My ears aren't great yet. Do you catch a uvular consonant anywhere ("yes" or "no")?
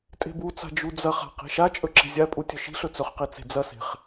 yes